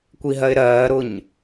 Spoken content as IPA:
kʷiɦɜɪ̯ɾɜːɾʊɲ

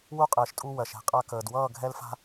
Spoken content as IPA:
wu˦˨qʼɘː˨ʃtʼu˧ wɜ˨ʃɛ̤˧qʼa˧kəː˨d wʌː˦˨ɡʱɛ˧lfa̤˧

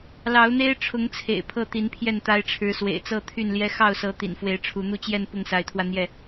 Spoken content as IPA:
lɑ˨˦ʊ̯n̪e˦ɪ̯ʈ͡ʂʰʊ˨˦ŋ t͡sʰḛ˨˩ɪ̯pʰɤ˥˨t̪i˨˦n pʰjɛ˥˨nt̪a˦ɪ̯ʈ͡ʂʰɻ̩˨˦swḛ˨˩ɪ̯ t͡sɤ˥˨t̪ʰy˥˨nljɛ˦ xɑ˥˨ʊ̯sɤ˨˦ t̪ḭ˨˩nfwe˨˦ɪ̯ʈ͡ʂʰu˨˦ n̪u˥˨t͡ɕjɛ˥˨n pʊ˥˨ŋsa˨˦ɪ̯t̪ʰwä˧n̪jɛ˥˨

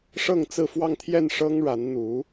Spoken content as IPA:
ʂɤ˥˧ŋt͡sɹ̩˥˧fwɑ˥˧ŋ t̪ʰjɛ˥˩nʂɤ˥ŋ ɻa˧˥nn̪u˧˥

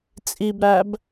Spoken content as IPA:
t͡sʼibɾæb

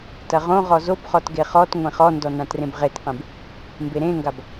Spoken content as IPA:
tɐʁõʁɔ zobχɔt ɡeχɔtŋʷẽ χɔndɔ nãtrẽbʁetqẽb | mbeɾẽŋɡab

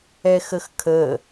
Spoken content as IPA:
ɛxəxkʰə

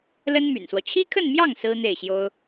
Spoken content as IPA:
lə˥nmy̰˨˩nswɔ˦ t͡ɕʰi˥kʰə˥˧nmjɑ˥˩ŋ sɹ̩˥n̪e˥˩ɪ̯ɕjo˥ʊ̯

